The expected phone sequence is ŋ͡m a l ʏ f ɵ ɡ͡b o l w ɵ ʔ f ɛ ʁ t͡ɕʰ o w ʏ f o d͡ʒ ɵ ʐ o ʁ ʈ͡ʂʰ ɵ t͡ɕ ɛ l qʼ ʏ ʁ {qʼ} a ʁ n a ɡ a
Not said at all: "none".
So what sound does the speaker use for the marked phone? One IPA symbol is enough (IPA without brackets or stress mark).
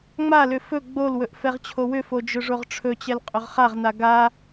χ